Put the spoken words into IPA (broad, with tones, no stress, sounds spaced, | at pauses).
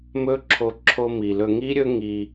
m ɵ˦ ǁʰ o˧ ǁʰ o˧ m i˨ l ɵ˧ ŋ i˦ ɾʲ ɵ˦ ŋ i˧